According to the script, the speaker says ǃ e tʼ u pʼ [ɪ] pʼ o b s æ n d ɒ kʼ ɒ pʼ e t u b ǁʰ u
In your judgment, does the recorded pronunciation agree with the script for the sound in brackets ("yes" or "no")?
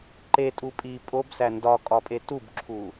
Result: no